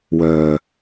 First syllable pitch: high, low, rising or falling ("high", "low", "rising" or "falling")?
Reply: low